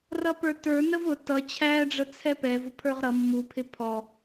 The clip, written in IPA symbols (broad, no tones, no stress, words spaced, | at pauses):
rʌpə˞tə˞ nəvʊ tʌ t͡ɕʰæɖ͡ʐə t͡sʰɛpɛv ʊpʰə˞ʁɾʌ mːupʰɪ pʰɔ